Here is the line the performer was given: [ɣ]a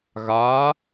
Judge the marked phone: correct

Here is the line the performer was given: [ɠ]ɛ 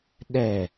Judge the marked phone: incorrect: ɗ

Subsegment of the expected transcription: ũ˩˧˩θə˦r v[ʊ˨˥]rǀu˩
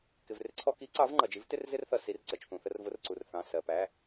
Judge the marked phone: correct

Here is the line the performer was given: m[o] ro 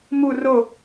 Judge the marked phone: incorrect: u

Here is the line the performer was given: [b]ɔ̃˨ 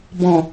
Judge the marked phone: correct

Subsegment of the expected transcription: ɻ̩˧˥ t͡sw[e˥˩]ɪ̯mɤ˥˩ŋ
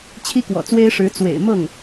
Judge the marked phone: incorrect: ḛ˨˩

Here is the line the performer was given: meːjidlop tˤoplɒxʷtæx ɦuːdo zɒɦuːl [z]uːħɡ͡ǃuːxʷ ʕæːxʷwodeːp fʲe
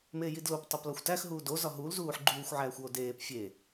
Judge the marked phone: correct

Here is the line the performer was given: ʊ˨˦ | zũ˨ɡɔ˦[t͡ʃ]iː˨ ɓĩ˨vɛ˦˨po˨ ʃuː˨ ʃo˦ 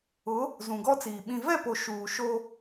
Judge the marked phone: incorrect: t͡s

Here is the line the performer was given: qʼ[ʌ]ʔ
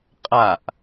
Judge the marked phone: incorrect: a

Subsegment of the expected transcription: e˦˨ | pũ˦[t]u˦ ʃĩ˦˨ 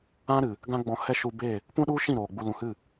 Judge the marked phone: incorrect: ɗ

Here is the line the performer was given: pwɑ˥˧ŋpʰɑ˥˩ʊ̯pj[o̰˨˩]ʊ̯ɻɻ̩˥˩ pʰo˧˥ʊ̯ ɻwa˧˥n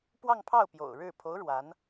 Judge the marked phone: correct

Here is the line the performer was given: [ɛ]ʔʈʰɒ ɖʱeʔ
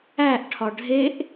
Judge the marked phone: incorrect: æ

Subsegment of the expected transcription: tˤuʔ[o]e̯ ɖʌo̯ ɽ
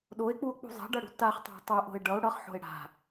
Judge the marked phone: incorrect: o̤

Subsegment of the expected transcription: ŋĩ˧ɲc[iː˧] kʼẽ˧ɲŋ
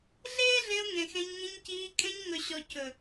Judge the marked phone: correct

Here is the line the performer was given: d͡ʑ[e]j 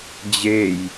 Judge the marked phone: correct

